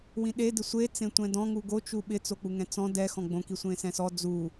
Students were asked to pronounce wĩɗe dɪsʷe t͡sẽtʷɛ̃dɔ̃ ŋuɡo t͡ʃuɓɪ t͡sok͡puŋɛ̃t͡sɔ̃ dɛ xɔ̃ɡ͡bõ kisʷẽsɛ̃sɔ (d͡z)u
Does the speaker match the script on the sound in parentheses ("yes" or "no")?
yes